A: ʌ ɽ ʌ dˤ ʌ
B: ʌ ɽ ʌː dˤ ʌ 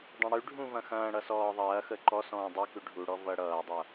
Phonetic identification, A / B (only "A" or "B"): B